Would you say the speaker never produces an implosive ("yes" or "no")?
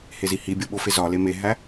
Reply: no